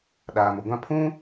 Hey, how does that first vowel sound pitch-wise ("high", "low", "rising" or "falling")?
low